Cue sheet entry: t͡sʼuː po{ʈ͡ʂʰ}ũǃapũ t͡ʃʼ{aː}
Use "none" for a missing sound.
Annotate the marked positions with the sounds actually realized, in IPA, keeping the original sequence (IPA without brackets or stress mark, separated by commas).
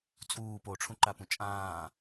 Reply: ʈ͡ʂʰ, ãː